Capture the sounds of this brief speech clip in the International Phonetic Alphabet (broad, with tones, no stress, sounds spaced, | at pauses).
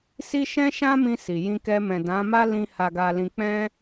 s i˦ ʃ ɛ̃˦ ʃ ã˦ m ĩ˧ s i˨ j ĩ˧ k ɛ˧ m ɛ̃˨ d ã˨˦ m a˦ l ĩ˧ h a˨ ɡ a˨ l ĩ˨ k͡p ɛ̃˧